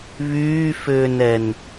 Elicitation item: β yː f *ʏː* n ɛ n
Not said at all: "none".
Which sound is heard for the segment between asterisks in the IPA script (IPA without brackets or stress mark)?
ʏː